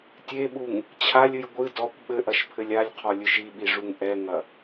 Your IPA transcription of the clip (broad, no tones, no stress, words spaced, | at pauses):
tʲeɓuŋ | t͡ɕʰalʲɨj ɡʷɨ dɔkʷ ɓɘʔɐʃpʰɘlʲ alʲqʰɔlʲɨʃ iɓiʐuŋ ʔɛŋɐ